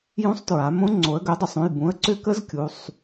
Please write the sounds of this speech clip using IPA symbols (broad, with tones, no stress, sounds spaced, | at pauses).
j ũ˧˥ sˤ t ɹ a˩˧ m õ˧˥ ŋ͡ǀ o˩˧ ə̯ ɡ ʏ˩˥ dˤ ʏ˩˧ sˤ ũ˩˧˩ j b ũ˩˥ ə̯ ǀ ʏ˧˥ k ə˧˥ z kʲ u˩˧˩ sˤ